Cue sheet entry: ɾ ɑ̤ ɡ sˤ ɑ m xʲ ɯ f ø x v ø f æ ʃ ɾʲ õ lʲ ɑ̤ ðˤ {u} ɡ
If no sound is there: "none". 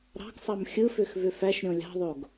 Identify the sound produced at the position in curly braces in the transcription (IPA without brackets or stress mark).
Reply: o